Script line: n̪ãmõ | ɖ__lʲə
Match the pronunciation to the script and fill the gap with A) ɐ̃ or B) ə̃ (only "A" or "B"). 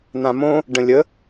B